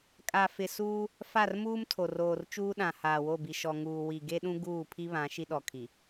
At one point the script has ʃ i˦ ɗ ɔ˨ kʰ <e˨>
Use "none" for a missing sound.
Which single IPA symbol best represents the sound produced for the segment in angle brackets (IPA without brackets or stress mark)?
i˨